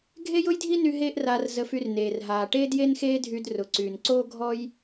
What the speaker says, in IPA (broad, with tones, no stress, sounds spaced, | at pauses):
ɡʱ e˥ j ʊ˥ j dʱ i˥ n y˧ ɦ eː˥ ʔ r aː˧ r z ə˧ f y˧ r n eː˩ r ɦ aː˩ ʈ eː˥ d j e˥ n x eː˥ dʱ y˧ d r ʊ˩ ǀ yː˩ n ǀ oː˥ ɡʱ ɔ˥ j